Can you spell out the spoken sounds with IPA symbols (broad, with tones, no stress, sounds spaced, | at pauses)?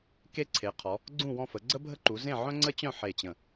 k e˦ ǀʰ e˩˧ qʰ ɔ˩˧ | ɡ͡ǀ ũ˦˨ w ɔ̃˦˨ f ə˩˧ ɡ͡ǀ ə˦ bʱ ə˦ ǃ u˩˧ z ẽ˦˨ ʕ œ̃˦ ŋ͡ǀ ə˦ t͡ɕ œ̃˦˨ ħ e˦˨ t͡ɕ ə̃˦˨